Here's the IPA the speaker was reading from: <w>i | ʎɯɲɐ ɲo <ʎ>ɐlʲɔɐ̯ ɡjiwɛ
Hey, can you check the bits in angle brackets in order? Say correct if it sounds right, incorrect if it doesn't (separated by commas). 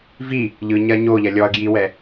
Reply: incorrect, correct